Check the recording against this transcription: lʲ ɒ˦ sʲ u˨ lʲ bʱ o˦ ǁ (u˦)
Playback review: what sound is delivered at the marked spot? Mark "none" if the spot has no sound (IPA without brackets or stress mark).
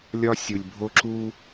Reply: u˦